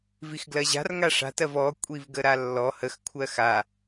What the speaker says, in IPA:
vixɡlɜʑa̤r ŋaʂa̤tɜv ɔ kʷʼivɡəɾalːɔ həxkʷʰɜ xa

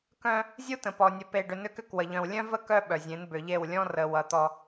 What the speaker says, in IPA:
kœ̃˦ | zʲu˦tə̃˨pɔ˨ nʲə˨pe˨ɖʏ˨ nʏ˦kʏ˦kwə˨ ʎœ̃˨wlʲœ̃˦ və˦ kœ˦ɓœ˨zʲẽ˨˦n bʏ˨ʎe˦˨w lʲɔ̃˦rə˨ wʌ˨ t̪ɔ˦

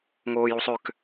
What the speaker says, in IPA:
ŋoːjusˤøk

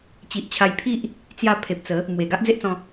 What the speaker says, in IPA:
t͡ɕi˨ʔt͡ɕʰa˧jpʰi˦ʔ | t͡sja˧ pʰe˨p̚t͡sə˨˦ | mwe˨˩ɡa˦ʔd͡ze˦ʔt͡sɔ̃˧

